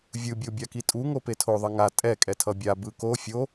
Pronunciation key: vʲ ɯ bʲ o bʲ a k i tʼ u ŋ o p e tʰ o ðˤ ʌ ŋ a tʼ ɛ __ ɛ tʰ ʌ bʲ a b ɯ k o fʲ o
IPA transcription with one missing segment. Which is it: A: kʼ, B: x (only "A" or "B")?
A